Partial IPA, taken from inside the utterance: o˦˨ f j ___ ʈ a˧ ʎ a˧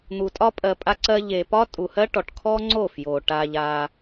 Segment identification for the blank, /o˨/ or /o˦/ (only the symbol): o˨